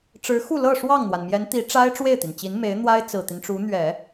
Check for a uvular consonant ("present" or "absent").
absent